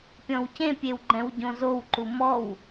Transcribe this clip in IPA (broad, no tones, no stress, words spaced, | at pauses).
pʲɔ̃wcẽpʲew ɡ͡ǃɛ̃wɟõzowǃu mɔw